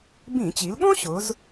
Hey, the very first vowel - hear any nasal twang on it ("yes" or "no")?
yes